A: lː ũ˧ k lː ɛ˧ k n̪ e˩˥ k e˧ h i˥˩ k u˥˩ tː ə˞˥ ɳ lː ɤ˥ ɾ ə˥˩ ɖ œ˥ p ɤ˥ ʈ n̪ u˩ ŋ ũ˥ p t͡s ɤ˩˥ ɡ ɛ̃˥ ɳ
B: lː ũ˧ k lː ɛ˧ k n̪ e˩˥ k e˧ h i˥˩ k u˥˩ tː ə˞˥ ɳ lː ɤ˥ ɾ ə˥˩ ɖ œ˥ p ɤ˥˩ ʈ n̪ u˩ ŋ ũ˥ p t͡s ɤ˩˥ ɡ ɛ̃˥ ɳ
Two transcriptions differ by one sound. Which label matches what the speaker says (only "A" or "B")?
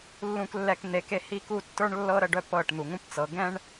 B